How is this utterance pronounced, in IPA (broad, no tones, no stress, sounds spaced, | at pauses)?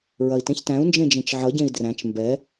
ɹ ɐ i̯ t ẽ ç t æ̃ u̯ n d͡ʒ ẽ d͡ʒ ẽ t͡ʃ ʕ ʌ ɟ ẽ i̯ d r æ̃ t͡ʃ m b ɛ